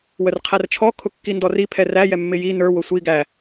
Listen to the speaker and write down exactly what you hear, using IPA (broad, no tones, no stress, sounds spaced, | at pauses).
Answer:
w ə r qʰ æ r t͡ʃʰ ɔ kʰ ʊ kː i n d ɔ r i pʰ ɛ r æ j ɛ mː ɪ j i n ə˞ w ʊ sʷ i ɡ æ